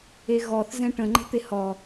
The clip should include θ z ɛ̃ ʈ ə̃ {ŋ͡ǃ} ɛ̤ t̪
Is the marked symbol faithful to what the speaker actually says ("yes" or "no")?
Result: yes